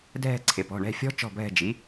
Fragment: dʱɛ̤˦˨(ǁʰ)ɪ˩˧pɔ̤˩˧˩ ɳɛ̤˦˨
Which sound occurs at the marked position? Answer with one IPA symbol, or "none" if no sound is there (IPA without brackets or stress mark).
ǀʰ